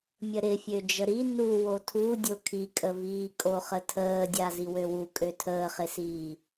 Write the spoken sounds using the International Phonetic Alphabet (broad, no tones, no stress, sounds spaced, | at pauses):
mʲ ə ɾ ɪ fʲ ø d͡ʒ ə ɾ i n u w o tʰ u dʲ o kʰ i kʼ ə v iː kʼ o χ ə tʰ əː dʲ a z i w ø w u kʼ ø tʰ əː χ ɪ s iː